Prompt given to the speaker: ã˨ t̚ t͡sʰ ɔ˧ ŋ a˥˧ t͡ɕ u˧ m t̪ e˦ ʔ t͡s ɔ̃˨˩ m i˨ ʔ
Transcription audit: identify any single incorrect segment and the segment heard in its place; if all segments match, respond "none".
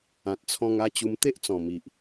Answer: ɔ˧ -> ɔ̃˧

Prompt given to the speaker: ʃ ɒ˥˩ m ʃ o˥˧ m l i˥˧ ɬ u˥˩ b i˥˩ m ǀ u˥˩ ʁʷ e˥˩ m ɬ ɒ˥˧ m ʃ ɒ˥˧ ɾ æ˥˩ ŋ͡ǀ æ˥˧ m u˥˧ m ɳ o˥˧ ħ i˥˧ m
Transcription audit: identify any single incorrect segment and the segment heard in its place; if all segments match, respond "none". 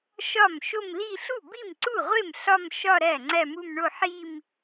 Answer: none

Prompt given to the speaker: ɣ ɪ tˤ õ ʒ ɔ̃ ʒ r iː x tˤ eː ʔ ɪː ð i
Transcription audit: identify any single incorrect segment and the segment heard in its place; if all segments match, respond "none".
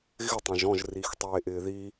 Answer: none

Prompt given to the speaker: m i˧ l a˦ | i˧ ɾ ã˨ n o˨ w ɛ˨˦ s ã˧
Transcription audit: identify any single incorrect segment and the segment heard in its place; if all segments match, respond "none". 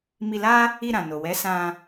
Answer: none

